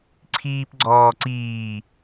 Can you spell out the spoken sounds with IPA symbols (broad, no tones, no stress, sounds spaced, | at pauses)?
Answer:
ǀʰ iː p ɡ͡ǀ ɔː ǀ iː